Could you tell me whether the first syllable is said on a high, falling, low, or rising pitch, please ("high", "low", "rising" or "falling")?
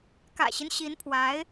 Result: low